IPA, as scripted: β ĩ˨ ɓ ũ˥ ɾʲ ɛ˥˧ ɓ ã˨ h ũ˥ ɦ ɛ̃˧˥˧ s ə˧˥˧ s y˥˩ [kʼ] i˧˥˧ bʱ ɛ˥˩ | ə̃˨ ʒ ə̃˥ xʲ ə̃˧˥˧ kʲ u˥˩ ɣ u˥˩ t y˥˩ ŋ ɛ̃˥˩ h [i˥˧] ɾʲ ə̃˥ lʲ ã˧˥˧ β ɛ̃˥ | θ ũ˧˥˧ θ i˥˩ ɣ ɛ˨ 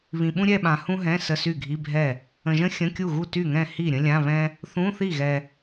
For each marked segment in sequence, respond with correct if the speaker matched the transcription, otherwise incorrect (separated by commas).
incorrect, incorrect